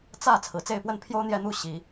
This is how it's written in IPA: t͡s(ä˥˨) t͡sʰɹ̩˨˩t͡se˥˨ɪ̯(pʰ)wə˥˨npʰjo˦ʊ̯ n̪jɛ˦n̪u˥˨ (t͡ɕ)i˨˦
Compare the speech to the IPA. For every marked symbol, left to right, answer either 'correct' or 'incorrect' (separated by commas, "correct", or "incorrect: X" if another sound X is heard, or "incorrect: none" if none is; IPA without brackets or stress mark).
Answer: correct, incorrect: p, incorrect: ɕ